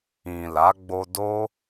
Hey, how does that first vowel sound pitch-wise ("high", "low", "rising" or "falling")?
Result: low